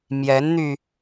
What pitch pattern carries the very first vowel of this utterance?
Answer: rising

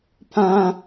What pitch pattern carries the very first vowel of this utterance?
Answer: high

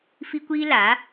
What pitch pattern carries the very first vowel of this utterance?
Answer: high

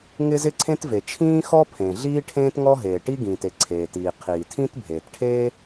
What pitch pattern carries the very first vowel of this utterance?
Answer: high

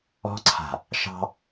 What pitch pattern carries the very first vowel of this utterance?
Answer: high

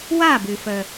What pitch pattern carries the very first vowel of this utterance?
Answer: falling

